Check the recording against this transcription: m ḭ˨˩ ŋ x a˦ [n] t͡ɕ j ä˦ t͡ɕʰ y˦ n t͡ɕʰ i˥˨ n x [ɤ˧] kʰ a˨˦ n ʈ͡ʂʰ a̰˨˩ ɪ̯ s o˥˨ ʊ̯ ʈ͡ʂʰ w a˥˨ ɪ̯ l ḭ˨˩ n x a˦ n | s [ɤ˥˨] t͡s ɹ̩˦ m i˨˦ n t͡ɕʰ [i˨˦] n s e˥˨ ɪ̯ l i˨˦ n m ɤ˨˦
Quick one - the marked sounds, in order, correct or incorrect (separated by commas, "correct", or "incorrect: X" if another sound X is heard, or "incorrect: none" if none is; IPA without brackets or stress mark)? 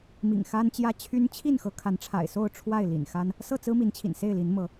correct, incorrect: ɤ˨˦, correct, incorrect: ḭ˨˩